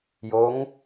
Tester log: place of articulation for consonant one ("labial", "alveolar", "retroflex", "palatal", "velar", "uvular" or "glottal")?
palatal